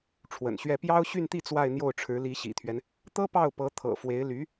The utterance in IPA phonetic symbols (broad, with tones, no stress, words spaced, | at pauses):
ʈ͡ʂʰwə̰˨˩nɕɥɛ˥˩ pjɑ˥ʊ̯ ɕy˥˧nt̪i˥˧ t͡swa˥˧ɪ̯n̪jo˥˩ʊ̯ʈ͡ʂʰɻ̩˧˥ li˧˥ɕḭ˨˩t̪ʰɥɛ˦n | t̪ɤ˥pɑ˥˩ʊ̯ pɤ˧˥ t̪ʰɤ̰˨˩ fwe˧˥ɪ̯ly˧˥